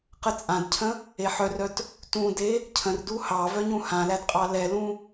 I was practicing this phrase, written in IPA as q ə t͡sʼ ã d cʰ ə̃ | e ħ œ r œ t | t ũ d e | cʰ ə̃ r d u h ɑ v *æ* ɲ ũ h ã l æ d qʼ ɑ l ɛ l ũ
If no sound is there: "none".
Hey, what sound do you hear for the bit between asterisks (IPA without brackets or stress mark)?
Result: œ